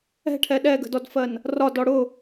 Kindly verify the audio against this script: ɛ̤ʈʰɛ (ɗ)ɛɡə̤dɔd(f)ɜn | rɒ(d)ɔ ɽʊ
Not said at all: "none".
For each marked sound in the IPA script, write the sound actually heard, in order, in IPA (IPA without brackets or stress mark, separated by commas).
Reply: ɗ, f, d